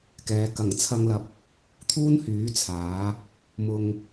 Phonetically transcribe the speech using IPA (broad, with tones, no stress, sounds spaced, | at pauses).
k ɛː˨˧ k ɐ˨˩ ŋ t͡sʰ ɐ˧ ŋ l ɐ˨ p̚ | t̪ʰ uː˥ n h yː˨˥ t͡sʰ aː˨˥ | m ʊ˧ ŋ